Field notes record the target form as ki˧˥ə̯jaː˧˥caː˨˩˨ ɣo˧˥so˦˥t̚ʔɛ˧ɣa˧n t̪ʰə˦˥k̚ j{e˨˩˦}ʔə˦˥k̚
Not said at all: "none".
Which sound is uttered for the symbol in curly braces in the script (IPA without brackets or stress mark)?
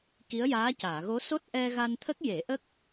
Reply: e˨˩˦